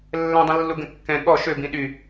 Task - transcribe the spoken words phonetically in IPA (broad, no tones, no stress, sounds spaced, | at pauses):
lː ɛ̃ dˤ ĩ lː u ɡ ə̃ kː ɛ̃ ɠ ɔ ʃ ø b ĩ ɗ y